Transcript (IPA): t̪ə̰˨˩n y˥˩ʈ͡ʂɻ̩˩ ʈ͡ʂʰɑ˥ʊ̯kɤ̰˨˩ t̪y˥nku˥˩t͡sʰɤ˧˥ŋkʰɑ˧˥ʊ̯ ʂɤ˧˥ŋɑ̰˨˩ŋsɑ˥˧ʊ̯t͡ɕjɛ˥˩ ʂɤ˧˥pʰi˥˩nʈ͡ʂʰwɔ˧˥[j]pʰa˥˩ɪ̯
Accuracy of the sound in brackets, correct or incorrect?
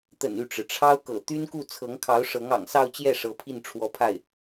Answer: incorrect: none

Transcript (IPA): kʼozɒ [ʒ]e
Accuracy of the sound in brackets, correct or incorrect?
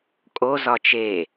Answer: incorrect: t͡ʃ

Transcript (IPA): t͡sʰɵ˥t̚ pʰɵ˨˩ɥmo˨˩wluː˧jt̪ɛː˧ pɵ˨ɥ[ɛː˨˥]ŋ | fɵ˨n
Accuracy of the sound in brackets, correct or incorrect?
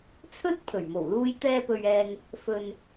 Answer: incorrect: ɛː˨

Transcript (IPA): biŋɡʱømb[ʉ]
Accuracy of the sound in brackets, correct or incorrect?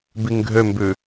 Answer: correct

